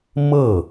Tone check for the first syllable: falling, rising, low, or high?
falling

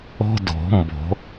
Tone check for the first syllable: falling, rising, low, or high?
high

